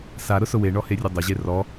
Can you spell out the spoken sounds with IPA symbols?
s a ɾ ʊ s ʊ w e ɳ ɔ h e rʲ ʊ dˤ ʊ ʑ e r ɔ

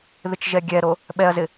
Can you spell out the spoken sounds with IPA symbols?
ð ɪ t͡ʃ ʒ ɛ ɡʲ ɛ ɾ o | ɓ ɛ ɐ̯ z ɪ

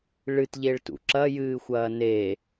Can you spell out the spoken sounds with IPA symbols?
ɭ ɨ t ʎ e ɭ t ṵ ǁ ɐ j ɨː xʷ ɐː n e

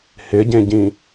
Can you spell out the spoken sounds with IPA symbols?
h ɪ ɟ ẽ ɟ ĩ

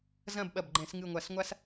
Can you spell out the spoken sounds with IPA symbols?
z ɐ̃˥˨ b ɓ ɐ˧˩ b ɡ͡ǃ ɛ̃˧˩˧ s ŋ ɨ˧˩ ŋʷ a˧˩˧ s ŋʷ a˦ s

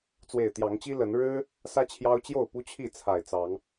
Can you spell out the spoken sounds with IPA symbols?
t͡s w e˨˩ ɪ̯ t̪ j ɑ˨˦ ŋ t͡ɕ i˦ l ə˨˦ n ɻ ɻ̩˦ | s ä˦ t͡ɕʰ j ɑ˦ ʊ̯ t͡ɕ j o˥˨ ʊ̯ p u˦ t͡ɕʰ i˥˨ t͡sʰ a˨˩ ɪ̯ t͡s ɑ˨˦ ŋ

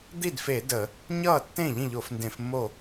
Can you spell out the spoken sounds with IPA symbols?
d̪ i˥˩ d f e˧˩˧ d ə˧˩˧ | ɲ ʌː˥˩ tː ẽ˥˩ ʎ ĩ˥˩ ʎ o˧˩˧ f n d ẽ˧˩˧ f mː o˥˩

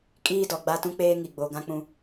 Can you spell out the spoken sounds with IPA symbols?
kʼ iː˦ d ɔ˨ ɡ͡b a˦ t ũ˦ k͡p eː˦ ŋ i˨ ɡ͡b o˨ ɡ ã˦ k͡p ũ˦

